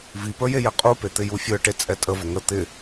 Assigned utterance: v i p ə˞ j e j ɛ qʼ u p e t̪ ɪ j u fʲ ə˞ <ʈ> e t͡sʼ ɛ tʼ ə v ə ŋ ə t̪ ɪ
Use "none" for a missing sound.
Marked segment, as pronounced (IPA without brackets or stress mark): ʈ